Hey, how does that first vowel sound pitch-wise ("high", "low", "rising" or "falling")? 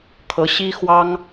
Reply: rising